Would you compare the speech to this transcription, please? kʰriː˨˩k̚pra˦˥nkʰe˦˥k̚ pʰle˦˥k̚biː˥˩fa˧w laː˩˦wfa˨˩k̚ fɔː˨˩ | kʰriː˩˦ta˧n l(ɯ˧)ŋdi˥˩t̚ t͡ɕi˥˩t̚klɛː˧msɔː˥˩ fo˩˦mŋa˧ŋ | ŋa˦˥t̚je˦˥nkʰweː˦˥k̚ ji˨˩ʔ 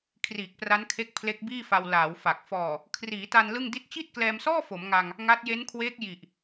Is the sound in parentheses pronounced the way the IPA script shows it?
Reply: no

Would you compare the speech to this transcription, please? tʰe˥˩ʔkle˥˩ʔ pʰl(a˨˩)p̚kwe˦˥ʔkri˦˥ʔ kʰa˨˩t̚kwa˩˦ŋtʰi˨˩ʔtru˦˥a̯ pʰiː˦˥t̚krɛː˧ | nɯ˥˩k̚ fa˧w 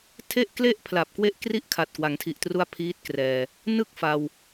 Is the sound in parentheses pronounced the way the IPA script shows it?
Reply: yes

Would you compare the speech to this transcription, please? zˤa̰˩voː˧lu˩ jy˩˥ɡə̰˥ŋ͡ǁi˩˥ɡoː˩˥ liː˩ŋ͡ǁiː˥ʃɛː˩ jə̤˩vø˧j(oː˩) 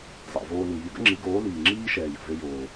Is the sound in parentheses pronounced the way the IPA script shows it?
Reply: yes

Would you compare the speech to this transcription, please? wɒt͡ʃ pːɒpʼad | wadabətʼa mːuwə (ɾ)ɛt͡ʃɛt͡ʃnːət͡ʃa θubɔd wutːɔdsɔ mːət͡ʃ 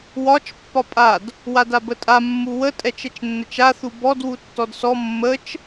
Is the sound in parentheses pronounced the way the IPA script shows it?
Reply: no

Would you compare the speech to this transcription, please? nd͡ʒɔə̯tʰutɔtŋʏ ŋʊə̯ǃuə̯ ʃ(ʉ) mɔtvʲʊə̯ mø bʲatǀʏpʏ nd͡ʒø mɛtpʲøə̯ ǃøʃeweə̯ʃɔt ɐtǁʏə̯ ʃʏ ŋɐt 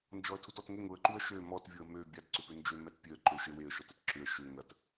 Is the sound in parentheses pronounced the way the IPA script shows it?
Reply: no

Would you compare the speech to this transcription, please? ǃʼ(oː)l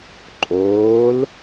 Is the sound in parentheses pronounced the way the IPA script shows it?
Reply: yes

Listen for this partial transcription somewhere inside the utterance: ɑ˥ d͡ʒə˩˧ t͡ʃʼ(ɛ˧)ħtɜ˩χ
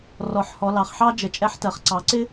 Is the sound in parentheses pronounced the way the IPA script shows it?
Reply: no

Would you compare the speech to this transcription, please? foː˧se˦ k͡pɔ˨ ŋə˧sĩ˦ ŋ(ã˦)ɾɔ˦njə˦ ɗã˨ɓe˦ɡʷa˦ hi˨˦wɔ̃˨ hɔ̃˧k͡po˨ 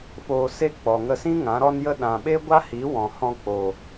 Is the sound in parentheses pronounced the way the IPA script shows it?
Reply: no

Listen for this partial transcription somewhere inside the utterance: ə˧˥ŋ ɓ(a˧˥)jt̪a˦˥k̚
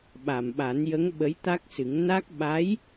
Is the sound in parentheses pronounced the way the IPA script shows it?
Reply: no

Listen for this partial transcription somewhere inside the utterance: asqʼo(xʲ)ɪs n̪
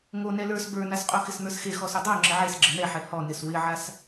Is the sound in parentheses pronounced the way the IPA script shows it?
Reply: no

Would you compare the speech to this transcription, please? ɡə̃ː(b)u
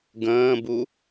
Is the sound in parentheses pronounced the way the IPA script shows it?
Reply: yes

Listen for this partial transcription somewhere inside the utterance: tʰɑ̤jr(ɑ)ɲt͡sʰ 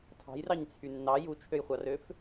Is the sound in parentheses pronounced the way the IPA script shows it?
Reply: yes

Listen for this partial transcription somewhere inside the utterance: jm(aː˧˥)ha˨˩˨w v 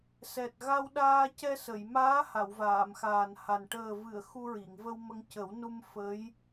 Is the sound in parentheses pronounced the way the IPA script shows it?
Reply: yes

